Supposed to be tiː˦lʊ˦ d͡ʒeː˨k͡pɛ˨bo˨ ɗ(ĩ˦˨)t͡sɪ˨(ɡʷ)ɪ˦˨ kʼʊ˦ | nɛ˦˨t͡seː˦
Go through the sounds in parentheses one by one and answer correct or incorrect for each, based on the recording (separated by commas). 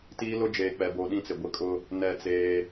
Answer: correct, correct